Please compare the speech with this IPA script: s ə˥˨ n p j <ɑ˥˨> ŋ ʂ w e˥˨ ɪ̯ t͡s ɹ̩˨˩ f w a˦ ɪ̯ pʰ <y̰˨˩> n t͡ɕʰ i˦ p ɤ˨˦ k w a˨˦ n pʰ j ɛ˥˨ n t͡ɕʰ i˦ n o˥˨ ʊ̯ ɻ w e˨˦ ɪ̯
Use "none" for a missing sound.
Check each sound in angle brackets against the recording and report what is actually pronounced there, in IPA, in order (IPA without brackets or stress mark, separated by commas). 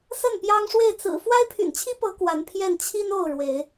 ɑ˦, y̰˨˩